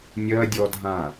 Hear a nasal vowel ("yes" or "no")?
yes